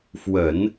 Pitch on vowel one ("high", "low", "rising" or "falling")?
low